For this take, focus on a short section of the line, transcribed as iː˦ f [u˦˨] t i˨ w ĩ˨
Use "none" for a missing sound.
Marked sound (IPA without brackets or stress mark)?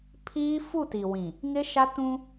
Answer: u˦˨